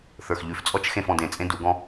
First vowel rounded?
no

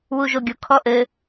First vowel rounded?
yes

